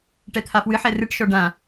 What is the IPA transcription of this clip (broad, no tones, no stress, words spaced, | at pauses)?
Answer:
ʈɛt̪ʰafwɨħɛ rɨʈʃɔ ɖã